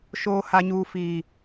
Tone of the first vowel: high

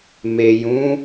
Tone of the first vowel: low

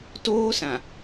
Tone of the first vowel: high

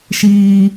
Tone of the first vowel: low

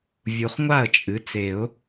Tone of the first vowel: low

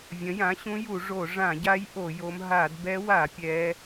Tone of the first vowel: rising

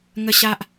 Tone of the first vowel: high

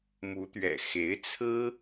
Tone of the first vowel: rising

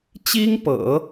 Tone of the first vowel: high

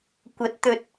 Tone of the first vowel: rising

